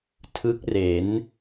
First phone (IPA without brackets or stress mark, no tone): tʰ